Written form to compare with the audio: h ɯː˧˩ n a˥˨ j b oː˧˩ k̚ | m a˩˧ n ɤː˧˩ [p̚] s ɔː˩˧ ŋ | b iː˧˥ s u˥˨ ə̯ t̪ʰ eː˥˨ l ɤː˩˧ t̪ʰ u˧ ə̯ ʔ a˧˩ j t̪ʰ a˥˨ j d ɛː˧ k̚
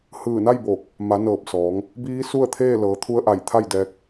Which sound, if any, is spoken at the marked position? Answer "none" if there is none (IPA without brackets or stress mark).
p̚